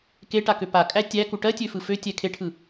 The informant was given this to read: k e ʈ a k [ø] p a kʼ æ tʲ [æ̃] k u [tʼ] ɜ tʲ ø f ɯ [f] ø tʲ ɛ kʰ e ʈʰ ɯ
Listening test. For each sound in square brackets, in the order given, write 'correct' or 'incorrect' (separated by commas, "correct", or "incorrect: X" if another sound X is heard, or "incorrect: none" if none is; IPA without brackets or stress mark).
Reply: correct, incorrect: æ, incorrect: ʈ, correct